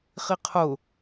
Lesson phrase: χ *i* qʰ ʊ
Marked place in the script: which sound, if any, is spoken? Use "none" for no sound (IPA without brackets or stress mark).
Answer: i